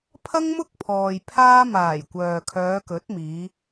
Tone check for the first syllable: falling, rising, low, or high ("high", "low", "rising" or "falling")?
high